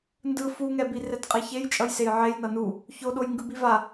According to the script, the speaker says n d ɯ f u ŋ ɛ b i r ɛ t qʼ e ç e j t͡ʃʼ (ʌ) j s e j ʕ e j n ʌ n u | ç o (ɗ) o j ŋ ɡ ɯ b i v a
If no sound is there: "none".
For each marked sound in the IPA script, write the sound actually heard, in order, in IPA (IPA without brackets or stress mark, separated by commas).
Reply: ʌ, ɗ